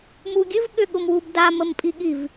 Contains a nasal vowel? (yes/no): no